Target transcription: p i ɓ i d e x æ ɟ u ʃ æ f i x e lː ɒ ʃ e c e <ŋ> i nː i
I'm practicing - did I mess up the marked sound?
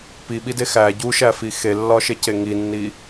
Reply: no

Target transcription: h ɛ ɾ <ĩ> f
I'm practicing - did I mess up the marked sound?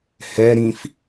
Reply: no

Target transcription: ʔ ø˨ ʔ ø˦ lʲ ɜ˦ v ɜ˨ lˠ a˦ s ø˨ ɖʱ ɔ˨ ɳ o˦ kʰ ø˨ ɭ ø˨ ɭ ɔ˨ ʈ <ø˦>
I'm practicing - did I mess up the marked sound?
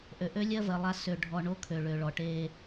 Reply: yes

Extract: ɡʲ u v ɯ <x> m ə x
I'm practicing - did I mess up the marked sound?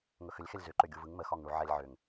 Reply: yes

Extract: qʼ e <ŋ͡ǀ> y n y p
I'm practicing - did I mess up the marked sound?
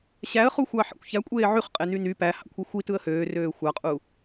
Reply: yes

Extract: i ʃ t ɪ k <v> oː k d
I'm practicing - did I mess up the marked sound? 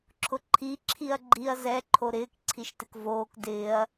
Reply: no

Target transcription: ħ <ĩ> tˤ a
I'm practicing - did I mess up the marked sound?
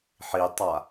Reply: yes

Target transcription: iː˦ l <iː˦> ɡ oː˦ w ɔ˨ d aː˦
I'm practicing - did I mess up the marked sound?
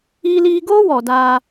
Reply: no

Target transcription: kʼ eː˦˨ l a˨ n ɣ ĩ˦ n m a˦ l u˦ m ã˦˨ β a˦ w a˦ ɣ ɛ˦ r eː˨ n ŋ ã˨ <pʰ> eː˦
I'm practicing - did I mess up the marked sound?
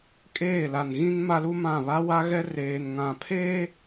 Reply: no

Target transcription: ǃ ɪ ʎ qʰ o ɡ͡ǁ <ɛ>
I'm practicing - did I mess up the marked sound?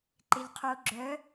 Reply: yes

